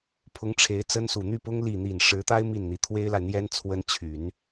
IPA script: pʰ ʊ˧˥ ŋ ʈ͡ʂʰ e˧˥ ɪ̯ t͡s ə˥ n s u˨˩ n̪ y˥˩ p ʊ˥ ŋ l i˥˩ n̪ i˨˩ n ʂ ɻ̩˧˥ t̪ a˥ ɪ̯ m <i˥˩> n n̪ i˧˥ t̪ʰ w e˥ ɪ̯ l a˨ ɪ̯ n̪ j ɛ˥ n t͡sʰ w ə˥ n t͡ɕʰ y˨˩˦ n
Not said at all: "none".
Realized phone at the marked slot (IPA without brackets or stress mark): i˥˩